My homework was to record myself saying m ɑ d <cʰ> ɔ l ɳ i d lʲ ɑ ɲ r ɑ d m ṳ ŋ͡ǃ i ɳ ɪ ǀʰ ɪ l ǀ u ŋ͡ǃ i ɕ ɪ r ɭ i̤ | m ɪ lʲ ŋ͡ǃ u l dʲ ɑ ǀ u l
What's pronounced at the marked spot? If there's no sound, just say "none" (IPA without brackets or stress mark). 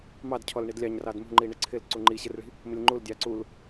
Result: cʰ